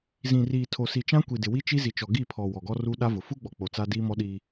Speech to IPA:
z ĩ˨ r iː˨ tʰ o˨ s i˨ t͡ʃ ã˦ kʷ i˨ d ɪ˨ w i˦ t͡ʃ i˦ z i˨ t͡ʃ ɔ˨ ɡ i˦˨ pʰ ɔ˨ w ɔ˨ ɡ ɔ˦ r u˦ ɗ a˦ v ʊ˨ f u˦ ɡ͡b ɔ˨ k͡p o˨ t͡s a˦ d iː˦ m ɔ˦ ɗ i˦

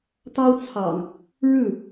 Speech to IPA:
t̪ ɑ˦ ʊ̯ t͡sʰ ɑ̰˨˩ ŋ | ɻ ɻ̩˥˨

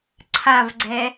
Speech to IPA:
ǀʰ a v ɡ͡ǀ ɛ

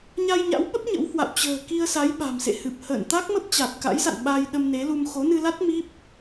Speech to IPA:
ɲ a˧ j ɲ a̰˧˥ w ɓ ə˦˥ p̚ ɲ ə̰˧˥ w h w a̰˧˨ w t͡ɕ ə̤ː˨˩ k i˧ ə̯ s a˨˦ j ɓ a̤˨˩ m s ḛ˧˨ h ɨ˨˩ p̚ h ə̰ː˧˨ n t̪ a˦˥ k̚ m ə˦˥ p̚ t͡ɕ a˨˩ t̚ k a̰˧˥ j s a̰˧˨ n ɓ a˧ j ɗ ə˧ m n e˨˦ l u˧ m x o˨˦ n ɨ˧ l a˦˥ t̚ m i˦˥ p̚

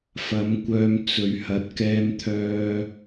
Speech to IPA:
f ɐ˨˥ m kʷ œː˧ m t͡s ɵ˨ ɥ h ɐ˨ t̚ k ɛː˧ m t̪ʰ œː˧

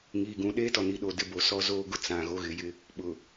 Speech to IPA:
ŋ iː˨ ɡ ũ˨ ɗ eː˦ t ɔ˨ n i˨ ɗ o˨ d ɪ˦ b o˨ s ɔ˦ z oː˦ ɡ ʊ˦ t͡s ã˨ ɣ o˦ ɣ ɪ˨˦ j ɪ˦ | ɓ ʊ˨

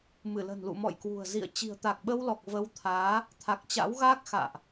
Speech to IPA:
m ɨ˧˩ l ə̤˨˩ n l ṵ˧˨ m ɔ̰˧˨ j k w ṳ˨˩ ə̯ z ḭ˧˨ ə̯ t͡ɕ i̤˨˩ ə̯ t̪ a˨˩ k̚ ɓ ə˧ w l ɔ˨˩ k̚ v ə˧ w t̪ʰ aː˨˦ | t̪ʰ a˨˩ k̚ t͡ɕ a̰˧˥ w ɣ aː˦˥ k̚ x a̰ː˧˨ ʔ

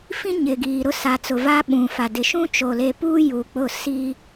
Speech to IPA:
f ĩ˦ ɲ ɪ˨ ɡ iː˨ ɾ ʊ˦ s a˨ t͡s ʊ˨ v a˦ ɓ ũ˨ f a˨ d ɪ˨ ʃ ũ˦ t͡ʃ o˨ l e˨ p uː˦ j uː˨ k͡p ʊ˦˨ s i˦

